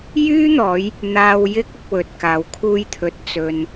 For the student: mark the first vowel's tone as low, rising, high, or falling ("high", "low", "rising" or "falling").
high